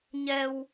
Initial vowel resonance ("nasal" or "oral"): oral